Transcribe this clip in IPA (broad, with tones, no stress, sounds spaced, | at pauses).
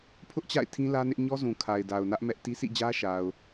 pʰ ʊ˦ ʔ t͡ɕ a̰˦˨ ɪ̯ tʰ ĩ˦ l ä˦ n ɪ˦ ʔ ɲ ɔ˦ z ũ˨ kʰ a˨ ɪ̯ d a˨ ʊ̯ n ä˦ ʔ m ɛ˦ ʔ t i˦ sʰ ḭ˦˨ d͡ʑ ä˦ ʃ a˨ ʊ̯